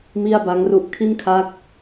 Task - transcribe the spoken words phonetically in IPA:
m i˥˩ a̯ b a˦˥ ŋ r u˦˥ ʔ kʰ i˥˩ n kʰ a˦˥ k̚

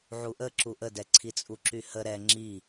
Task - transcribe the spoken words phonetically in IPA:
ʕ u ʔ ə ǁ u ʔ ə d ɛ ǀʰ i t͡sʼ u ǁ y h ə ɾ ɛ ŋ͡ǁ i

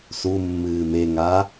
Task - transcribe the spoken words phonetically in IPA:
s u mː ɨː m e ŋ a

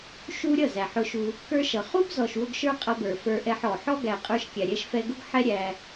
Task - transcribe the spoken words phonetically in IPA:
ʃ u˦ ɾʲ ʌ˦˨ z æ˨ ħ ʊ˧ ʃ u˧ | k ə˞˦ ʃ ʌ˨ χ u˦ b z ɔ˨ ʃ w ʊ˧ ɡ ʃ ə˞˦ qʼ ʌ˧ b ə˞˨ f ə˞˧ ʔ ɛ˧ ħ ɔ˨ ħ ɔ˦ ɡ æ˨ qʼ ə˞˧ ʃ kʲ æ˨ ɾʲ ɛ˧ ʃ f ɛ˧ ɡ ʊ˦ ɡ ħ ɛ˦ ɾʲ æ˧

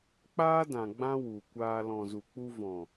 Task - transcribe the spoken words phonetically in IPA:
k͡p aː˦ d ã˨ ɡ͡b ã˦ w u˨ kʷ aː˧ l ɔ̃˨ z u˨ k͡p u˧ v ɔ̃˨

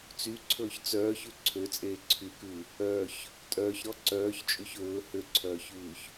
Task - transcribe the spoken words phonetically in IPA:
t͡s y ǀʰ ɵː ç t͡s œː ç ʉ ǀʰ ø t͡sʼ eː ǀʰ y k ʉ | œ ç | tʼ œː ç ɾ ɔ ǀ œː ç t͡ʃʼ y ç ɵː h ø ǀʰ œː ç ʉː ç

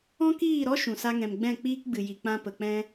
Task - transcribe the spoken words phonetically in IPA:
ɔ̃˦ k iː˦˨ ɾ ɔ˦ ʃ ũ˨ s a˧ ŋ ɛ̃˨ m ɡ͡b ɛ̃˦˨ k͡p iː˦ k ɡ͡b ɨ˨ j i˨ k͡p ã˧ p ə˨ k͡p ɛ̃˦

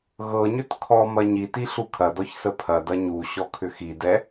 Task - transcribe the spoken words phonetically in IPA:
ɣ ɤ ɲ ʏ t kʰ ɔ m ɐ ɲ i t i ɬ u kʰ ɐ d ɔ ç s ə pʰ ɐ d ɐ ɲ u ɕ ɔ kʰ ʏ x i d ɛ

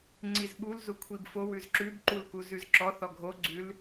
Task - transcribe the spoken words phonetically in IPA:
ŋ͡ǀ i z ɓ u l z u kʷʰ i b f o w ʉ z ǁ ʉ b ǃ u l k u z ʉ z ǁ ɔ θ ɔ ɡʱ o ɡ͡ǀ ʉ l

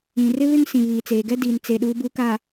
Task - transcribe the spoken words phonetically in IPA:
ĩ˨ r ɪ˦ β ɪ˦ ŋ s ĩ˨ β iː˨ t͡s eː˨ ɡ ɛ˦ d iː˨ n t͡s e˨ ɗ uː˨ b u˨ k a˨

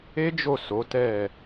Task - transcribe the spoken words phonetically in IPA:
e˦ d͡ʒ o˦˨ s o˨˦ t ɛ˦˨

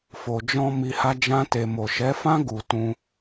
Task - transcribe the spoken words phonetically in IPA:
f o˨ d͡ʒ ɔ̃˧ m i˧ h a˦ d͡ʒ ã˦ t e˧ m o˨ ʃ ɛ˨˦ f ã˦ ɡ u˧ t ũ˦

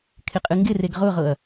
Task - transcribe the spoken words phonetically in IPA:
kʰ ɪ qʼ ɨ ŋ ɡ ɪ r e ɡ ʁ ʊ ʁ ɤ ɐ̯

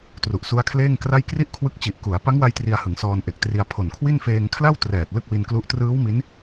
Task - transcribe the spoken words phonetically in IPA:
t r u˨˩ ʔ s u˦˥ a̯ kʰ l eː˥˩ ŋ k r a˥˩ j k r i˥˩ ʔ kʰ w ɯ˦˥ k̚ t͡ɕ i˨˩ ʔ k u˩˦ a̯ p a˦˥ ŋ w a˧ j t r i˧ a̯ h ɯ˩˦ ŋ s ɔː˧ n ʔ e˨˩ k̚ t r i˧ a̯ pʰ o˨˩ n kʰ w i˥˩ n f eː˧ ŋ kʰ l a˥˩ w t r ɛː˨˩ t̚ l ɯ˥˩ k̚ w i˧ n k l u˦˥ ʔ t r ɯː˦˥ w m i˦˥ n

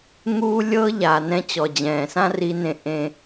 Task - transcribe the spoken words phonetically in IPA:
ŋ uː˧ lʲ ɤ˧ ʎ aː˨ n ɛ̃˧ t͡ɕ ɔ˨ d͡ʑ ɛ̃ː˨ s ã˦ r i˧ n ẽ˧ ʔ ẽ˧

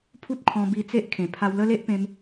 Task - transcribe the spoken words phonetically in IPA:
pʰ u˦ t̚ kʰ ɔ̃˧ b i˧ t͡s e˦ ʔ kʰ ẽ˨˩ pʰ a˧ w l ə˦ l e˦ ʔ p ẽ˧ m

